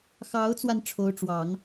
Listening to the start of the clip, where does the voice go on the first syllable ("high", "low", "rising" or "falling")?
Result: rising